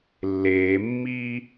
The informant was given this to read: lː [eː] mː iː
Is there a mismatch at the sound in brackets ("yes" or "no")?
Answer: no